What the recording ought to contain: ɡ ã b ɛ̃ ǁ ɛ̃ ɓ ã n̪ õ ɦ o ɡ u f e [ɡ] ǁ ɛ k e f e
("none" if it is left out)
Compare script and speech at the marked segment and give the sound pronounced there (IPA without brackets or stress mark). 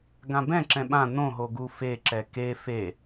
none